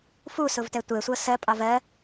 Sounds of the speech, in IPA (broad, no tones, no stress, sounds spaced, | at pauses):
f u s ʊ v t ɛ tʷ ɛ sʷ ʌ s ɜ pʼ ɑ v ɜ